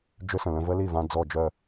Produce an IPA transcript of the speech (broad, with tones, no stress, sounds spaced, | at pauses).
d͡ʒ ʏ˦˥ s ə̃˩ l ə̃˧ v ə˦˥ l i˥˩ v ã˧ d͡z ɔ˧˩ d͡ʒ œ˧˩